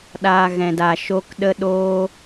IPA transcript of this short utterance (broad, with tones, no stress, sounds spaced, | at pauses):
ɗ aː˦ ɣ ɛ̃˧ d aː˧ ʃ o˦ k ɗ ə˦ ɗ oː˦